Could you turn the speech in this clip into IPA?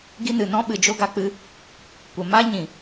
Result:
ɡ i˧ n ɨ˨ n ɔ̃˦ ɓ ɨ˨ d͡ʒ o˦ ɡ a˧ k͡p ɨ˦ | kʷ ə˨ m a˦ ɲ ĩ˨

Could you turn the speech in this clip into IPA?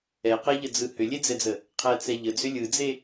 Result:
ɛ q ɛ ʎ ə d͡z ɯ h ʏ lʲ e d͡z ɛ d͡z ə | qʰ ɛ t͡s ɛ ʎ ə d͡z ʏ lʲ ɯ d͡z e

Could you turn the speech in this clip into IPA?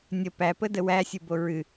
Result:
nʲ ə p æ p ə d ə w æ sʲ ɨ b o ɹ ɨ

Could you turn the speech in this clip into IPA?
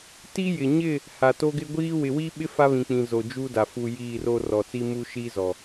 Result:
t i˦ j ɪ˨ ɲ ɪ˦˨ | h a˨ t o˦ ɡ ɪ˦ ɡʷ iː˦ w ɪ˨ w i˦ ɓ ɪ˦ f a˦ β ĩ˨ k͡p ĩ˨ z o˨ d͡ʒ u˦ d a˨ f u˨ j iː˦˨ r o˦ r ɔ˨ t͡s i˦ m u˦ ʃ iː˦ z ɔ˨

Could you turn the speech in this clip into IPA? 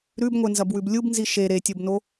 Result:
ɾ ʉ b ŋʷ e n z ɐ b w ʉ b lʲ u b n z i ʃ e ɾ e tʲ o b n o

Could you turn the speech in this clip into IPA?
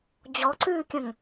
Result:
d͡ʑ ɔ ǀ ʉː kʲ ə̃ ŋ

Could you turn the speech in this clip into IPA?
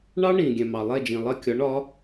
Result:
ɳ ɑ˥ ɳ ĩ˩ ɡʲ ɛ̃˩ m ɑ˩ lˠ ɛ˥˩ d͡ʒ ĩ˩ lˠ ɜ˥˩ kʲ ɒ˩˥ ɳ ɒ˩˥

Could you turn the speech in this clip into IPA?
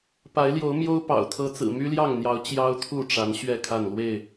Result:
p a˨˦ ɪ̯ l j o˨˦ ʊ̯ m j o˦ ʊ̯ p ɑ̰˨˩ ʊ̯ t̪ʰ ɤ˦ t͡s ɹ̩˨˩ m y˦ l j ɑ˥˨ ŋ n̪ j ɑ˨˦ ʊ̯ t͡ɕ j ɑ˦ ʊ̯ t̪ʰ u˥˨ ʈ͡ʂ a˨˦ n ɕ ɥ ɛ˥˨ kʰ a˥˨ n l w e˥˨ ɪ̯

